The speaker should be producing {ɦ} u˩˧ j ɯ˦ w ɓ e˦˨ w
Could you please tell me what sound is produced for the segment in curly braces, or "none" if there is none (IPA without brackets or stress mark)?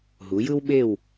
ɦ